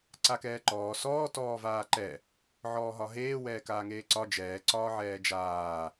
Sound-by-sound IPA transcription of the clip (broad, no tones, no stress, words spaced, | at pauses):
ǀakɛːǃɔː sɔː tɔːvaːǃɛ | ʕɔːɦɒɦeː wɛːkaːŋeːǀɒ d͡ʒɛː ǀɒːʕɛːd͡ʒaː